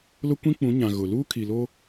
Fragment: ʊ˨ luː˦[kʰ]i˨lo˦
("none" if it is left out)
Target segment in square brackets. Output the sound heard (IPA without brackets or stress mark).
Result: kʰ